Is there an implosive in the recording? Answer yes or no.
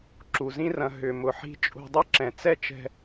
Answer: no